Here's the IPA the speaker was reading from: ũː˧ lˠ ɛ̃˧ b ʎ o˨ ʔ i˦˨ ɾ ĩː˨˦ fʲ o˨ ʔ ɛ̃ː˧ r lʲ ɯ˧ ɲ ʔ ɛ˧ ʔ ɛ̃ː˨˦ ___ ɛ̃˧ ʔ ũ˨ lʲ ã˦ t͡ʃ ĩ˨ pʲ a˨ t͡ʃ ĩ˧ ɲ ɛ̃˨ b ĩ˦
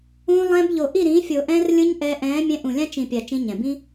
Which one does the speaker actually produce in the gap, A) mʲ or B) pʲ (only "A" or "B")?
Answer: A